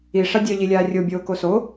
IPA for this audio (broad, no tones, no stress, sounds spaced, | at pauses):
i ʂ a dʲ œ ʎ i lʲ aː rʲ o bʲ oː k o s o